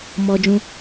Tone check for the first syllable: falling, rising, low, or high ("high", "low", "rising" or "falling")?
high